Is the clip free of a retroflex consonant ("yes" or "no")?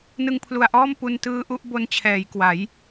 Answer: yes